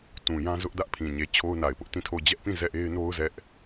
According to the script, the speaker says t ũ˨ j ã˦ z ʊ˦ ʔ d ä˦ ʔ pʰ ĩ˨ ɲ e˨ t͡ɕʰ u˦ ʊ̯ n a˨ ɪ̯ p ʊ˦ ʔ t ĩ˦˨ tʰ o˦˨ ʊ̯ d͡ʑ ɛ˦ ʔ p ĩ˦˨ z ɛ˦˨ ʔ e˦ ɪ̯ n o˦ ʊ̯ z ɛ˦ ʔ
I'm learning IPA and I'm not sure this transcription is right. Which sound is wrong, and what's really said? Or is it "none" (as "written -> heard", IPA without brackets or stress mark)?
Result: u˦ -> o˦